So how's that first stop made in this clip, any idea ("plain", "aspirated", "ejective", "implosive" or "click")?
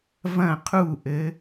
aspirated